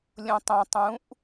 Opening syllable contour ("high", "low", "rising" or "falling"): low